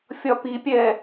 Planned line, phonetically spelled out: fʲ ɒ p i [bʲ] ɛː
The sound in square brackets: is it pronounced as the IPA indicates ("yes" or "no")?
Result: no